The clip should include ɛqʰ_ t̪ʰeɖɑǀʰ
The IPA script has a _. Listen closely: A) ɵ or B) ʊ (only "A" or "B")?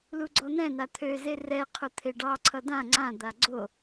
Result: B